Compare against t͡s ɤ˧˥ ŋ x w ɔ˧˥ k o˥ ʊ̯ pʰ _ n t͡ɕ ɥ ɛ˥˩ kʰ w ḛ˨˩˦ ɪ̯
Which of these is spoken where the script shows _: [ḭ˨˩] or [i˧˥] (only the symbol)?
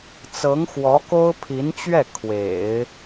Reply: i˧˥